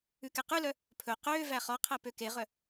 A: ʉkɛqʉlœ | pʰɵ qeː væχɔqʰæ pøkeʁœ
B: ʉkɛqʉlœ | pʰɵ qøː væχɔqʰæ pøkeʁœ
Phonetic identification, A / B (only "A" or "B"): B